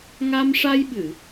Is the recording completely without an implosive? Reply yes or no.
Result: no